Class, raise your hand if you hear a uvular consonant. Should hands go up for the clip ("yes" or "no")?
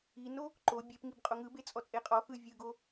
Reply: yes